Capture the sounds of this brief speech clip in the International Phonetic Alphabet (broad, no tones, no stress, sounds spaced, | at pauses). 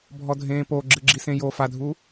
bʱ ɔ dʱ ẽː p o ɡ͡ǁ ɨ ɡ͡ǁ i s ẽ j o f a dʱ uː